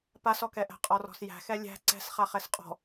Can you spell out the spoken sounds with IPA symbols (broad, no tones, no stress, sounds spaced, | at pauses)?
p a s ɔ k ɛ ʔ æ̤ qʼ ɔ r ɔ̤ s j æ̤ x ɛ lʲ æ̤ ǀ ɛ̤ s χ a χ ɛ s qʼ ɔ̤